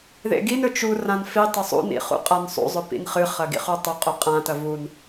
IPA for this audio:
ð ḛ ɡ i n ɵ t͡ʃ u r ã n f i tˤ ɵ sˤ ṵ n ḭ χ ṵ qʼ a n sˤ ṵ zˤ ɵ p ḭ n χ ɨ χ ɐ ɡ ḭ χ u tˤ ɵ qʼ ɵ qʼ ã t ɐ v u n

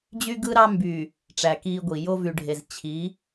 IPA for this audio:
d͡ʑ y˦ ɡ ɯ˦ ɾ ɑ˦ m b y˨ | ʈ͡ʂ æ˨ k iː˦ ɡʷ i˨ j o˦ v y˨ ɖʱ e˨ z t͡ɕʰ i˨˦

